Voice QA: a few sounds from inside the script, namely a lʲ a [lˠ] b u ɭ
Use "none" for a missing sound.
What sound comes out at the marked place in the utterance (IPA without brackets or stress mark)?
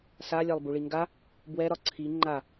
lˠ